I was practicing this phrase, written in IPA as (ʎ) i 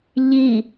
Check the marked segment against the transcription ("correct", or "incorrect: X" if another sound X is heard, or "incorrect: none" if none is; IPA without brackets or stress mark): correct